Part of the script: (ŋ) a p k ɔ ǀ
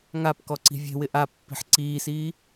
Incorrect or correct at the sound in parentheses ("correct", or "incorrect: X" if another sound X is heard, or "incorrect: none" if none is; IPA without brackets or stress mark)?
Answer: correct